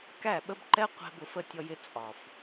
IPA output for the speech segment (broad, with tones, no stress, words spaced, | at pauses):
kæ˦˨ɓə˦bǃɛ˦ qʷɛ̤˧b ʊ˨f ə˦˨tʲɔ˧jɪ˧ t͡sʼɒ˨f